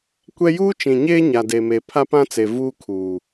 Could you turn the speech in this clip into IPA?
kʷ ɛ˦ j uː˦ t͡ʃ ĩ˨ ɲ eː˦ ɲ a˨ d e˨ m e˨ pʰ a˦ p ã˦ t͡s e˨ v uː˦ kʰ uː˨

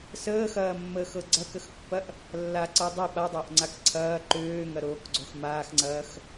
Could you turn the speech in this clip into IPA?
s əː x ɐː mː əː x ɤ ɡ͡ǀ ɐ k ə x pː ɐ ʔ | lː a ǀ ɤ dˤ ɐ ɓ a dˤ ɐː ʔ ŋ͡ǀ a k ǀʰ ɐː ǃ øː ŋ ɐ ɾ oː k ɡ͡ǀ o x m aː x ŋ͡ǀ ɐː x

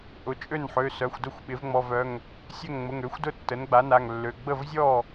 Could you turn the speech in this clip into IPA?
ʔ ʊ˩˥ t͡ʃʼ ø˥˩ n ħ ø˩˧˩ s œ˩˧˩ xʷ d ʊ˥˩ xʷ ɓ ɪ˩˥ v ŋ͡m ɔ˩˧˩ v œ˩˧˩ ŋ | sʲ œ˥˩ ŋ ŋ͡m ʊ˩˧˩ ŋ ø˩˥ xʷ d ʊ˥˩ tː ə˩˥ n ɡ͡b a˩˥ n a˩˧˩ ŋ lː ø˩˧˩ ɡ͡b ə˥˩ v zʲ ɔ˥˩

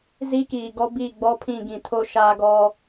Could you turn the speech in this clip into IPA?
z i˦ k iː˨ ɡ ɔ˦ b i˦˨ ɡ͡b ɔ˦ pʰ ĩ˦˨ ɡ ĩ˨ tʰ o˦ ʃ a˦ ɡ ɔ˦

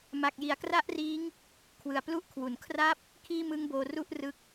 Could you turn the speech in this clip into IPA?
m a˨˩ k̚ j i˩˦ a̯ k r a˦˥ ʔ r iː˦˥ ŋ | kʰ w ɯ˨˩ a̯ p l u˥˩ ʔ kʰ w u˨˩ n kʰ r a˥˩ p̚ | kʰ iː˥˩ m ɯ˦˥ ŋ b oː˧ r u˥˩ ʔ r ɯ˦˥ k̚

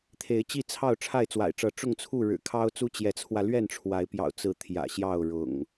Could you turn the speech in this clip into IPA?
t̪ʰ e˨˦ ɪ̯ t͡ɕ i˥˨ t͡sʰ ɑ˥˨ ʊ̯ ʈ͡ʂʰ a˥˨ ɪ̯ t͡s w a̰˨˩ ɪ̯ ʈ͡ʂ ɤ˨˦ ʈ͡ʂ ʊ˥˨ ŋ t͡sʰ u˥˨ ɻ ɻ̩˨˩ kʰ ɑ˦ ʊ̯ t͡s u˦ t͡ɕ j ɛ˨˦ t͡sʰ w ä˧ l ɥ ɛ˥˨ n ʈ͡ʂʰ w a˨˦ ɪ̯ p j ɑ̰˨˩ ʊ̯ t͡s ɹ̩˨˦ t̪ʰ j ä̰˨˩ ɕ j ɑ˥˨ ʊ̯ ɻ ʊ̰˨˩ ŋ

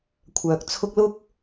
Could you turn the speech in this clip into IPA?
kʷʰ œː˨ k̚ t͡sʰ ʊ˥ k̚ l ʊ˥ k̚

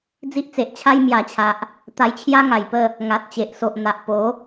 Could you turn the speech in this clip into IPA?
d͡z i˦ ʔ t͡s e˨ ʔ t͡ɕʰ a˦ j m j a˨˩ t͡ɕʰ a˨ ʔ | t̪ a˧ j t͡ɕʰ j a˦ ŋ a˨˩ j p ə˥˧ | ŋ a˨ t̚ t͡ɕ e˨ ʔ s o˨ ʔ n̪ a˨ ʔ p o˨˦

